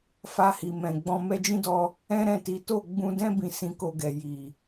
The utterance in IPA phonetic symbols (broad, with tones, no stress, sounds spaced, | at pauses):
f a˧ h i˨ m ɛ̃˨ ɡ͡b ɔ̃˧ m ɛ˧ d͡ʒ ĩ˦ d ɔ˧ | ɛ̃˦ ɾ ɛ̃˦˨ t i˨˦ t o˦˨ ɡ͡b ũ˧ d ɛ̃˦ b ĩ˧ s ĩ˧ k o˧ ɡ ɛ˨ j i˨